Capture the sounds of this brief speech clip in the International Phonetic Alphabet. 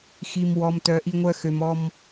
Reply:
x i˨ m w ɔ˨ m t œ˨ ʔ i˧ ŋʷ œ˧ x ø˨ m ɔ˧ m

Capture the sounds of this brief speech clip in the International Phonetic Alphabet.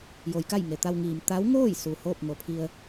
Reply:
j o˩˧ j k a˥˨ j ŋ e˩ t̪ a˧ w ŋ iː˩ m t̪ a˧˥ w ŋ oː˥˨ j s u˩ h oː˥˨ p̚ ŋ o˩˧ pʰ i˧ ə̯

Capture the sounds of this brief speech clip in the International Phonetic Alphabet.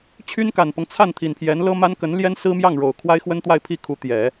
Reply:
t͡ɕʰ y˥ n k a˨˩ n p ɤ˦ ŋ t͡sʰ a˥˩ n t̪ʰ i˨˩ n pʰ j ɛ˧˥ n l ɤ˥ m a˥ n k ə˧˥ n l j ɛ˥ n s ɹ̩˥ m j ɑ˥˩ ŋ ɻ o˨˩ ʊ̯ kʰ w a˥ ɪ̯ x w ə˥ n t̪ w a˥˧ ɪ̯ pʰ i˥˩ kʰ u˧˥ t̪ j ɛ˨˩˦

